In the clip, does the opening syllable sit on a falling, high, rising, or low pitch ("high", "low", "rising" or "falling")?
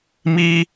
high